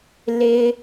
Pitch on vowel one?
low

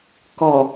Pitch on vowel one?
low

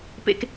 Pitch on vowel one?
high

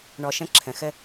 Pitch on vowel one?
low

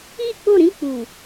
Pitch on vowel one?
falling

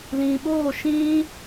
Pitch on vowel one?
low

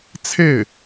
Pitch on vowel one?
falling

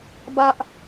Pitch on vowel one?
high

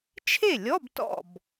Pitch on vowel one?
falling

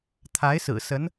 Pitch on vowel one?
rising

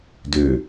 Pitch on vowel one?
low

